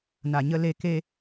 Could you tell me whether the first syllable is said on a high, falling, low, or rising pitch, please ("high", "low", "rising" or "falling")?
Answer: low